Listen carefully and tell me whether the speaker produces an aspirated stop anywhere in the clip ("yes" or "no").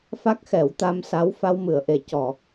no